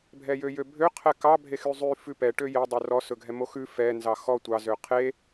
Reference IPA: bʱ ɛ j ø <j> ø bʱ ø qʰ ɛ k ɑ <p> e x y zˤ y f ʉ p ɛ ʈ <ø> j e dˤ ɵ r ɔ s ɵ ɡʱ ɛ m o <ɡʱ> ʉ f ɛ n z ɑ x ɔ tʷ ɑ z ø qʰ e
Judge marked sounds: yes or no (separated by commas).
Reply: yes, no, yes, no